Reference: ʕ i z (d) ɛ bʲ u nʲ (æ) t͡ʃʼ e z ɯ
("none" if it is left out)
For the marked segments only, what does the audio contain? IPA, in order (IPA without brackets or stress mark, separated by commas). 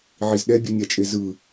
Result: ɗ, a